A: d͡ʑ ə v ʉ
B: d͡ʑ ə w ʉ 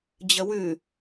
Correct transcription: B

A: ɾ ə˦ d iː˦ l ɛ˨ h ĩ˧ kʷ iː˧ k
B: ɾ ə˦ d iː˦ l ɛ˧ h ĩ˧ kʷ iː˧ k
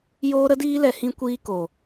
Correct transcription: B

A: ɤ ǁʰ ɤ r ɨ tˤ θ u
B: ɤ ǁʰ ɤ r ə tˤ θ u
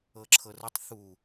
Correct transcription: B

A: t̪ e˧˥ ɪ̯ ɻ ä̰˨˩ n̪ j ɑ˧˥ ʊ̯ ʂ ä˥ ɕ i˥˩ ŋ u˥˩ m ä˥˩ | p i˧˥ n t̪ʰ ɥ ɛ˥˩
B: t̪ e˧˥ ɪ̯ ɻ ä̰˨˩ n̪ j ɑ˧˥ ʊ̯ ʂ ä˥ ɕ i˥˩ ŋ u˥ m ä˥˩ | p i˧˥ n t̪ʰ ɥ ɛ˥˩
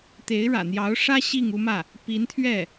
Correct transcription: B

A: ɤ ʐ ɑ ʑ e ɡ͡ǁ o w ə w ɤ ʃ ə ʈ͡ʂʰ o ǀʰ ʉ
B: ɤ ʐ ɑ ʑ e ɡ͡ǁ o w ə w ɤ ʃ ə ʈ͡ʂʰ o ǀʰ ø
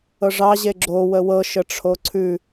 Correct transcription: A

